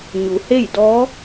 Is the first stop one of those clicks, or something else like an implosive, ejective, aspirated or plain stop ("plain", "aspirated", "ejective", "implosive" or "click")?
plain